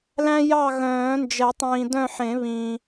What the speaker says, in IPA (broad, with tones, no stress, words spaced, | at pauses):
læ̃˦ jɑ˦˨ɣœ̃ː˨˩˦nd͡ʒɛ˨˩˦tˤĩː˨ dœ̃˦˨ħẽ˨˩˦βĩː˨